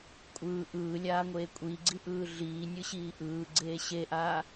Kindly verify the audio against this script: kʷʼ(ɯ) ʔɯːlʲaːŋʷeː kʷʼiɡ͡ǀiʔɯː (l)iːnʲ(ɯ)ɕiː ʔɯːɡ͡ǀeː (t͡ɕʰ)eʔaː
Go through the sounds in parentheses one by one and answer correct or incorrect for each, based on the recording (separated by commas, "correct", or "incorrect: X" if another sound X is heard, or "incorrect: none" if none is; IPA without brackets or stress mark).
incorrect: ɯː, incorrect: ɮ, correct, incorrect: ɕ